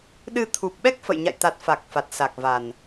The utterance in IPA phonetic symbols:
ɗ ɨ˧ t̪ʰ u˨˩ p̚ ɓ ɛ˦˥ k̚ f ə̰˧˨ j ɲ a̰˧˨ j t̪ a˨˩ t̚ f a˨˩ k̚ f a˨˩ t̚ s a˨˩ k̚ v a˨˩ n

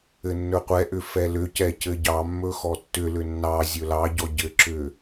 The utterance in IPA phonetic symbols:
ɘ nː ɵ qʷ ɛ ʔ ʏ f ɛ l ʏ c ɛ c ɘ ɟ ɑ mː ɵ x ɔ tː ʏ l ʏ nː ɑ zʲ ɵ l ɑ ɟ ɔ ɟ ɘ ǁ ʏ

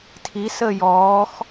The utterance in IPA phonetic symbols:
tʰ i s əː j ɔː x

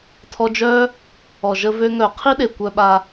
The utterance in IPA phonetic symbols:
tʰ ɔ˧ d͡ʒ œ˦ | ɔ˨ ʒ ə˧ v ø˧ ŋ œ˨ qʰ i˦ ɗ e˨ kʷ œ˧ ɓ a˧

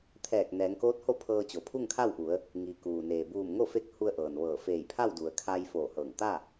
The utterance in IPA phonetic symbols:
t̪ʰ ɛː˧˩ k̚ n ɛː˩˧ ŋ k oː˧˥ t̚ h o˥˨ pʰ ɤː˧ t͡ɕ o˩ pʰ u˥˨ ŋ kʰ a˥˨ w ʔ u˩˧ ə̯ | ŋ i˩ k uː˩ n eː˩ b uː˧˩ m ŋ o˥˨ f e˧˥ k̚ h u˧ ə̯ ʔ ɤː˩ n ʋ ɤː˧˩ f eː˧˩ j pʰ a˥˨ w d u˩ ə̯ kʰ a˧ j f oː˧˩ h ɤː˧˩ ŋ t̪ a˥˨

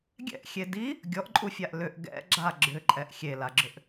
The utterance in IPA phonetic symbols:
ɡʲ ɛ̰ ʔ xʲ e d i | ɡʲ ɔ ʔ ǃʼ u fʲ a ʔ l ʏ ʔ ɡ ɛ̰ ɡ͡ǁ a ɡ͡ǁ ʏ ǃʼ ɛ ʔ xʲ e l a ɡ͡ǁ ʏ ʔ

